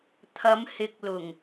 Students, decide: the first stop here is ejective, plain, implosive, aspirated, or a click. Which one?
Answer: aspirated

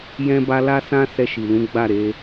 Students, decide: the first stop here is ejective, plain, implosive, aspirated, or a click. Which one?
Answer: plain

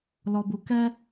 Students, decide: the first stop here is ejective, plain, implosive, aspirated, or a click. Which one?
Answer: plain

